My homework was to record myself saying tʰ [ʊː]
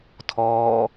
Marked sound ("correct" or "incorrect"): incorrect